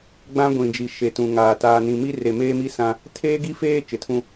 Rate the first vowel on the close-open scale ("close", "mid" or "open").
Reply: open